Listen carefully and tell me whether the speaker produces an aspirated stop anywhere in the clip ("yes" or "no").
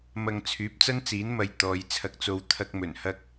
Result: yes